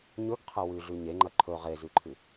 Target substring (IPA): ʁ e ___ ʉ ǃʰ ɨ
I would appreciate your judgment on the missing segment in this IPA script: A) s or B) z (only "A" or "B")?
B